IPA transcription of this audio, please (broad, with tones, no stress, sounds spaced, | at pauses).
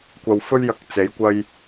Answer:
kʷ ɐ˧ w f ɵ˥ ɥ j ɐ˧ k̚ t͡s e˨˥ j kʷ ɐ˧ j